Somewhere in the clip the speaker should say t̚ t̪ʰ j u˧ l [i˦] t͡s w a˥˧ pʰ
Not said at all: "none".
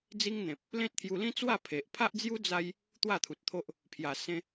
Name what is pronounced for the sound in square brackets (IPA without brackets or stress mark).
ĩ˦